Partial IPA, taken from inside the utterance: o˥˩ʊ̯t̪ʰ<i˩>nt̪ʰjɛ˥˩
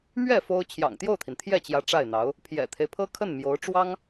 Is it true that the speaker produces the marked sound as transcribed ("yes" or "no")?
yes